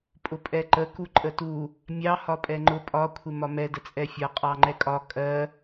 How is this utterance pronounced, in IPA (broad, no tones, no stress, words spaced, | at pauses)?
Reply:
pʼʊpʼɛǃə kuǃʼətu | mʲɑ hɒpʼɛŋ͡ǃʊ pʼɒ kʷʰɪmɒmɛ dət͡sʼɛfʲʌ qʼɑŋ͡ǃɛkʼɒ kʼɜ